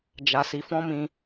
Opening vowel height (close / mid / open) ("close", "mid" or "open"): open